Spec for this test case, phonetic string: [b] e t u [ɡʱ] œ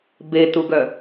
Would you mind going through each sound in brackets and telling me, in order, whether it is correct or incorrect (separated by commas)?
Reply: correct, incorrect